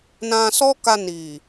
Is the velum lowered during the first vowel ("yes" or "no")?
yes